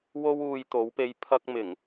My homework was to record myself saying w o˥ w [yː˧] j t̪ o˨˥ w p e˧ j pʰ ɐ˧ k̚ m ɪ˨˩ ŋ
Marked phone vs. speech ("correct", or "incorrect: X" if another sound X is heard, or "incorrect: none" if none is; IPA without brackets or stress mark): incorrect: uː˧